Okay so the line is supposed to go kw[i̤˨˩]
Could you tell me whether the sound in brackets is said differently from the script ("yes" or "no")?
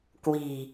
no